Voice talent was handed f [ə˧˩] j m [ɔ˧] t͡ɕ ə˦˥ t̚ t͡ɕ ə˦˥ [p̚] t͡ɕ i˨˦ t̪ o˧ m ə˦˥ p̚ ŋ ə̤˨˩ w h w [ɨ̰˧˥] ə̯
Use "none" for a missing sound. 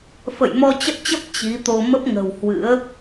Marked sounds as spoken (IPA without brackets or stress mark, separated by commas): ə̰˧˨, ɔ˧, p̚, ɨ̰˧˥